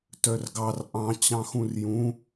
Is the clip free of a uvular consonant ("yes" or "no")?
yes